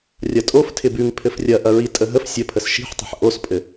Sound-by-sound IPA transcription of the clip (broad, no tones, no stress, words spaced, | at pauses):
rʲɐtʼof tʰɪbʉŋ pʰɘfrʲɐ ʔɐɹitʼəɦəf sʲəpʰəs ʃi̤ħtˤə̤ħ ʔospʼɘ